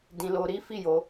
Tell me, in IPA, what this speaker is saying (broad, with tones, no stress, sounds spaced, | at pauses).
d ĩ˧ l o˧ ɾ i˦ f i˦˨ j o˧